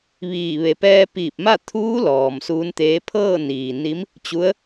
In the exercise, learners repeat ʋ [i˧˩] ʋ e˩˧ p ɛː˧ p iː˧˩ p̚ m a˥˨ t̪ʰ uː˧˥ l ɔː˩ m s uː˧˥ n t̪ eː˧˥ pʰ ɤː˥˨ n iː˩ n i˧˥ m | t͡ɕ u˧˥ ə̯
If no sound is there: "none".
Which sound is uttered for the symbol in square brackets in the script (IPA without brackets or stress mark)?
iː˧˩